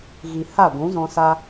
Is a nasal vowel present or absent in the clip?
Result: present